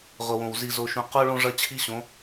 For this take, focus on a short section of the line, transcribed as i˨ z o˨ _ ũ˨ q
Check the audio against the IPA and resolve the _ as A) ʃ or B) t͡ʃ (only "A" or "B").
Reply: A